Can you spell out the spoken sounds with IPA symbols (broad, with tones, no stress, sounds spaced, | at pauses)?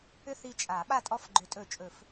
ʏ˦˨ θ i˦˨ t͡ʃʼ a˨˩˦ ɓ a˦˨ tʼ ɔ˦˨ f ɡ͡ǃ ʏ˨˩˦ tʼ ɵ˨˩˦ t͡ʃʼ ɵ˨˩˦ f